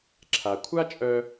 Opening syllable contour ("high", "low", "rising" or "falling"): low